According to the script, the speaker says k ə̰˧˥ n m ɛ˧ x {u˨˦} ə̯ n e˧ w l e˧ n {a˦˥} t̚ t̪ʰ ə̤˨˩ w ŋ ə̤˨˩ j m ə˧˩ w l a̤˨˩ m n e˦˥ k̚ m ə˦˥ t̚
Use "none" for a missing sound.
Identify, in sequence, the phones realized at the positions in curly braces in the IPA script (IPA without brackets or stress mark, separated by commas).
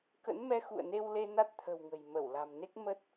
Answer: ṵ˧˨, a˦˥